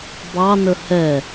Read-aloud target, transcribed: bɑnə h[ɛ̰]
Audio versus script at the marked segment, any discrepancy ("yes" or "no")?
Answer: yes